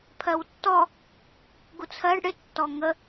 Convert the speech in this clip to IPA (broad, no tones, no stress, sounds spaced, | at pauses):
pʰ ɜ w tː ɔ | ɡ u t͡sʰ ɜ ɖ ɽ ɪ tː ɔ ŋ ə